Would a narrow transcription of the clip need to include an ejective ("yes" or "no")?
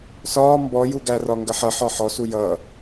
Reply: no